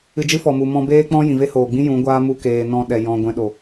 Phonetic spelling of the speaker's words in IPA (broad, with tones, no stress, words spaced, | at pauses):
ɨ˧d͡ʒɨ˦fɔ˨mu˨ mɔ̃˧beː˦k͡pɔ̃˦ jĩ˨ve˦hoː˨ɡ͡bĩ˦ jũ˨˦ɡʷaː˦mu˧ keː˨ nɔ̃˧ɗɛ˨ jɔ̃˧ ɡʷɛ̃˧ɗo˨